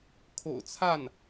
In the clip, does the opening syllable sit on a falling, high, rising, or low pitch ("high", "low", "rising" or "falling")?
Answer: low